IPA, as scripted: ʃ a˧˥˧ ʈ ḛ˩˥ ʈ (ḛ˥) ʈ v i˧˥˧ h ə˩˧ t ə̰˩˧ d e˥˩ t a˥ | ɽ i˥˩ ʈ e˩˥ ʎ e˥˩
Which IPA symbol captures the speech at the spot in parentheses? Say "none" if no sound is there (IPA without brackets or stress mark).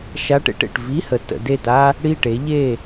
ḛ˨˩